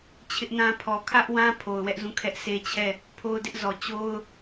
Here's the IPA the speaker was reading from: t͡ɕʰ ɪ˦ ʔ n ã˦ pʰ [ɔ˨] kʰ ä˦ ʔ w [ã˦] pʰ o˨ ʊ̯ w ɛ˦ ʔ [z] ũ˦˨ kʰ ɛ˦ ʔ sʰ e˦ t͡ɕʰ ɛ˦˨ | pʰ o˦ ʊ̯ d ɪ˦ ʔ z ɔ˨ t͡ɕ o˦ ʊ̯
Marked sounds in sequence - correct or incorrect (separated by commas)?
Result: correct, correct, correct